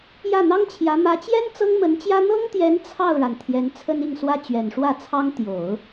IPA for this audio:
j ä˥˩ n̪ ɑ˥ ŋ t͡ɕʰ j ä˧˥ m ä˧˥ t͡ɕ j ɛ˥ n t͡s ɤ˥ ŋ m ə˧˥ n t͡ɕ j ä˥ n̪ ɤ˥ ŋ t̪ j ɛ˧˥ n t͡sʰ ɑ˥˩ ʊ̯ ɻ a˩ n t̪ʰ j ɛ˧˥ n t͡sʰ ə˥ n i˥˩ ŋ s w ä˥ t͡ɕ ɥ ɛ˨˩ n ʂ w ä˥˩ t͡sʰ ɑ˥ ŋ t̪ j o˨˩˦ ʊ̯

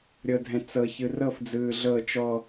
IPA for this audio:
ɾʲ ɤ dʱ ɛ̃ t͡s ɤ ç ɯ r ɤ f d͡z ɯː ɮ ɤ t͡ʃ ɔ

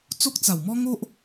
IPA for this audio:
t͡s o˦ k̚ t͡s a˨˩ w m ɔ˦ ŋ o˦ ʔ

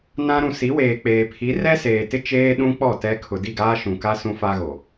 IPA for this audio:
n ã˦ ɾ ũ˨ s i˨˦ w eː˨ k͡p eː˨ pʰ i˨˦ r ɛ˦ s eː˨ t ɪ˦ t͡ʃ eː˦ ɗ ũ˦ k͡p ɔ˦˨ t ɛ˦ kʰ ʊ˨ d i˦˨ ɡ aː˦ ʃ ũ˨ k a˦ s ũ˦ f a˦ ɣ o˨

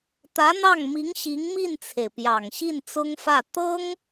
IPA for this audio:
t̪ ä˧˥ n̪ ɑ˥˩ ŋ m i˧˥ ŋ ɕ i˧˥ ŋ m i˥˩ n t͡sʰ e˩ ɪ̯ p j ɑ˨˩ ŋ ɕ i˥˩ n t͡s ʊ˥ ŋ f ä˥˩ t̪ ɤ˥ ŋ

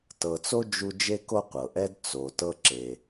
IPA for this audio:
t ɤ˨ t͡s o˥ d͡ʒ u˦ d͡ʒ e˦ k o˦ qʷ ɤ˩ ʔ ɛ˥ d t͡s o˩ t ɤ˦ ǁ e˩

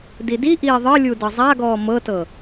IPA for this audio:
d i d i ʔ iː ðˤ ɤ lʲ u d ɤ zˤ a ɡ ɔː m ɤ t ɤ

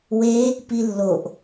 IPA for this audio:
w e | p i lː o ʔ

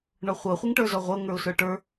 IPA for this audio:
ɳ ɔ χʷ ɤ χʷ i ŋ ʈ ə˞ z ɔ ʁʷ ɤ ŋ ə˞ ʊ̯ s ə˞ ʈ ə˞

